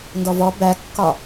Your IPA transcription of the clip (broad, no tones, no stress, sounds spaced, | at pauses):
n d ɔ v ɔ b æ kː ɒ